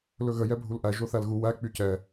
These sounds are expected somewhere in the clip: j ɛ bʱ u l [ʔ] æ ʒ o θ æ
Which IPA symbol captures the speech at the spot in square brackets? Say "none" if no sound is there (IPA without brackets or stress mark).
ʔ